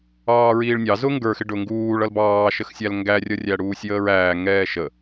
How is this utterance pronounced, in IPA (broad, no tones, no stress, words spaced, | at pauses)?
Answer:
ɑːɹiːɭnʲɑ zʊŋɡə˞xɪ ɖʊŋɡuːɭ ʌlbɑːʃəxsʲæl ŋɡærʲʌ rʲæɽuːsʲjəːɹæː ŋɛːʃə